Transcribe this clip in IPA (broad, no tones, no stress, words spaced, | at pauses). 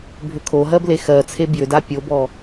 bʱʏkʰoɦɜble xɜt͡sʰe bjʏda pʲobɔ